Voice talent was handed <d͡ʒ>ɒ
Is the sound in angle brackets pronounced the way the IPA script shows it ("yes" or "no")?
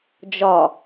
yes